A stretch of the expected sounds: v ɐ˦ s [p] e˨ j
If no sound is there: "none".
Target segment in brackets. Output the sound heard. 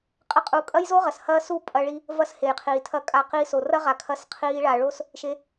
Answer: h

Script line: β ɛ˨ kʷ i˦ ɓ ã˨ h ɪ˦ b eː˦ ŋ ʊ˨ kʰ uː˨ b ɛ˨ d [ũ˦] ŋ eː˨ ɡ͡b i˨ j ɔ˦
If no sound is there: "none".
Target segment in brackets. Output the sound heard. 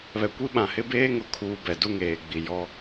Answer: u˦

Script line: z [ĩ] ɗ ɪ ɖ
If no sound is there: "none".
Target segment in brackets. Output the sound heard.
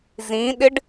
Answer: ĩ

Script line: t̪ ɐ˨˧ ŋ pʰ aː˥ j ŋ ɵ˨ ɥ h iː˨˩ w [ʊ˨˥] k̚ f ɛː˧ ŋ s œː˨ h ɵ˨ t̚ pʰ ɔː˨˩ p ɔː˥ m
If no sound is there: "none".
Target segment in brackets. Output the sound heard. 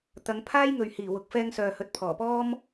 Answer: ʊ˨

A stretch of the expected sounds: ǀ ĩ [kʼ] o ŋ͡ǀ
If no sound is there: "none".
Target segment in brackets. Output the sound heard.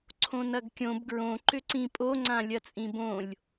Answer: pʼ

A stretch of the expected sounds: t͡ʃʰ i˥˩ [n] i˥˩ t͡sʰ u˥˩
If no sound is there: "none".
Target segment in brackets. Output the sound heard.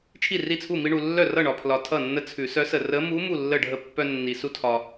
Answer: r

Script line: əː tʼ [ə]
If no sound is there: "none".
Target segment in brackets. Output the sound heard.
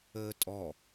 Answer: ɔ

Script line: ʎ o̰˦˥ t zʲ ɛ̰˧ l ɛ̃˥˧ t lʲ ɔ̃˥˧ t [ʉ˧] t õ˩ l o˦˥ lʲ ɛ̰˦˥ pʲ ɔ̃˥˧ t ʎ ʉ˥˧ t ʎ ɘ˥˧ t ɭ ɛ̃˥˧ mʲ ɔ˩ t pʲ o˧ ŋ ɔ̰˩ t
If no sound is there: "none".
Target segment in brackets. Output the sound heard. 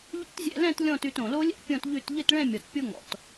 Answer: ʉ˧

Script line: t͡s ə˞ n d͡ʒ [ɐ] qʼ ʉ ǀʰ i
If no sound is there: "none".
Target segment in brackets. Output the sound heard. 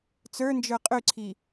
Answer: ə˞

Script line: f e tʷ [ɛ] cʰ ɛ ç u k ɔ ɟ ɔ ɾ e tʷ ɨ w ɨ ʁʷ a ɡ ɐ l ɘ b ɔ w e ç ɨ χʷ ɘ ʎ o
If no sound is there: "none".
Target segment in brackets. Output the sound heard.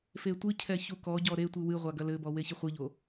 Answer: ɨ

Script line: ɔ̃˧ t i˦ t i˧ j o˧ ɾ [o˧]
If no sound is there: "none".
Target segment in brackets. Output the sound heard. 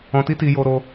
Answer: o˧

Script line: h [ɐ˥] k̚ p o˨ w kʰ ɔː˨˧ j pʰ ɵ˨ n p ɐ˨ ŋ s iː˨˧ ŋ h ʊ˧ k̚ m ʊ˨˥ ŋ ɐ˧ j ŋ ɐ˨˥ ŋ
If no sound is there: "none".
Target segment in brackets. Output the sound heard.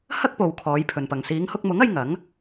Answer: ɐ˥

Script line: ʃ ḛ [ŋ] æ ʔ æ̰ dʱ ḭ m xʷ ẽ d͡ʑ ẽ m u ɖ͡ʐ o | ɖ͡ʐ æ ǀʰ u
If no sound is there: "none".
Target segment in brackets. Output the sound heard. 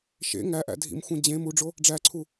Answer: ŋ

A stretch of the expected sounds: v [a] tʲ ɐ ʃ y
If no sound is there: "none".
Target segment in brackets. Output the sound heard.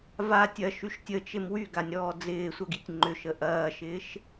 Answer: a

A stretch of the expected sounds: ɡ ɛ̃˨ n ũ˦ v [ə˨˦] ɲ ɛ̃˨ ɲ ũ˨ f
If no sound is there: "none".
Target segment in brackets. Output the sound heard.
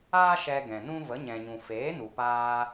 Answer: ə˨˦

